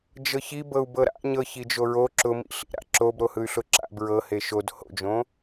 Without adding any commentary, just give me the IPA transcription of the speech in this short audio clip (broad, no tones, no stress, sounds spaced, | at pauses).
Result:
d͡ʒ ɤ ç i b ɤ u̯ b ɤ ɾ a̰ ɲ ɤ ç i d͡ʒ o ɹ o ǁ ʊ m ḭ ɬ ḭ ɾ a̰ ǁ o b ɾ o h ɯ y̯ ɬ ʊ ǁ a̰ b ɹ ɤ h e ʃ o d h o̰ d͡ʒ õ